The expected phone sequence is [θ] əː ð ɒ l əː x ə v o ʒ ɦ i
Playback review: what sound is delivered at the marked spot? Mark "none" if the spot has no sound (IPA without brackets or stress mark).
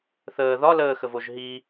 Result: θ